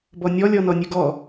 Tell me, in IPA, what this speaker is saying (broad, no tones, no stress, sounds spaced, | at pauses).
b ɔ nʲ ɔ lʲ ɔ n ɔ nʲ ʉ ɡ ɔ